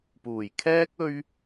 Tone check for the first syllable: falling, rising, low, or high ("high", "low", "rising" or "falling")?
low